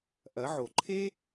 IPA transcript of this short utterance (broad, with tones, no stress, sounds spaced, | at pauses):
ʔ ɐ˩˧ ʕ o˩ ǃʰ e˥